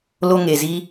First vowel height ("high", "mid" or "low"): mid